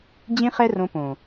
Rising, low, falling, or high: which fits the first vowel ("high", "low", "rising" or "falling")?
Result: high